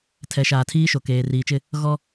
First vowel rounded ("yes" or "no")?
no